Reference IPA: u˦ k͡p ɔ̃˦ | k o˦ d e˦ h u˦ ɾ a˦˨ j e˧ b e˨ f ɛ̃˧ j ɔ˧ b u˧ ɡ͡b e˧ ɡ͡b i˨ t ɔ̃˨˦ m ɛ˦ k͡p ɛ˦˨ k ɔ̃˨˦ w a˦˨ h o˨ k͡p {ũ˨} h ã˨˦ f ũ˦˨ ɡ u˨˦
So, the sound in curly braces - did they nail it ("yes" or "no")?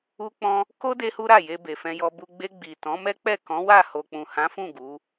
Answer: yes